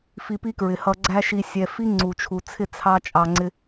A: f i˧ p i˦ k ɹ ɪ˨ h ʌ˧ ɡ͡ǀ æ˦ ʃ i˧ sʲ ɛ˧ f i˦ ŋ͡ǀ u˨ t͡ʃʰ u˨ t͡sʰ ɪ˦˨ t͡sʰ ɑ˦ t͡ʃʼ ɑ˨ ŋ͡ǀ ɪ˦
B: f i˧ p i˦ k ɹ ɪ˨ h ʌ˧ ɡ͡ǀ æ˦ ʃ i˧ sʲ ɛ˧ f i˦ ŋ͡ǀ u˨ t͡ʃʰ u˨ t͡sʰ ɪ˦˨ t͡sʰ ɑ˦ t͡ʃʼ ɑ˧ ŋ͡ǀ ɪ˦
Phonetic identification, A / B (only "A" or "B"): B